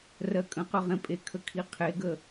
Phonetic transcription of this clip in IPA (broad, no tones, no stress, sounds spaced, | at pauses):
r ɜ kʼ ə̃ q ɵ ʁ ẽ pʼ e kʰ ə kʰ i qʰ e ɡ ə